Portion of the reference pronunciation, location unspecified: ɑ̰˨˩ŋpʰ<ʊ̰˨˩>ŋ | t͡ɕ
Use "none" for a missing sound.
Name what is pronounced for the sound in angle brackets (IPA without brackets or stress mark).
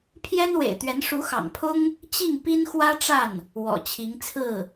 ʊ˥